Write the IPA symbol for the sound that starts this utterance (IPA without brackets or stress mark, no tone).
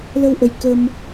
l